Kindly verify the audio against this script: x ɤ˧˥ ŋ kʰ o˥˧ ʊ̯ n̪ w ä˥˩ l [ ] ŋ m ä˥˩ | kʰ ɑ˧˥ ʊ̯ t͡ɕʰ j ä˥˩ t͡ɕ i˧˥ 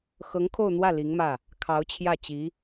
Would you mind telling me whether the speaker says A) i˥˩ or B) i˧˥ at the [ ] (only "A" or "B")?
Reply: B